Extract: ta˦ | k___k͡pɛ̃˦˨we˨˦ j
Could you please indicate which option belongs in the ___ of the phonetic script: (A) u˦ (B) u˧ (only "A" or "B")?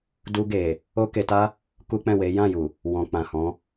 A